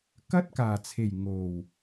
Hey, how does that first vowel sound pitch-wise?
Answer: high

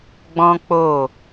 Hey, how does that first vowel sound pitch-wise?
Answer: high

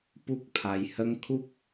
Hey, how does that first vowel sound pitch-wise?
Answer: high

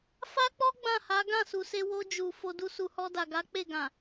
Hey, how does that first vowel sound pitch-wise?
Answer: high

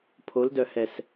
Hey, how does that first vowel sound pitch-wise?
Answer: rising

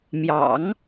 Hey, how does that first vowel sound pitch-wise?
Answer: low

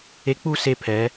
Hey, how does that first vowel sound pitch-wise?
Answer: rising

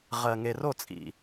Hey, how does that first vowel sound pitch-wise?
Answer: low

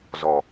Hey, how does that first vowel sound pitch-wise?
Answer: low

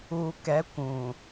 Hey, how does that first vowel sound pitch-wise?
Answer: low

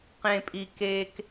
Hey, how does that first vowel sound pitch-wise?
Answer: low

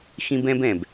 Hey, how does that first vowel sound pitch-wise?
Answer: high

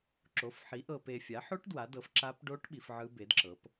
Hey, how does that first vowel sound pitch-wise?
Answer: rising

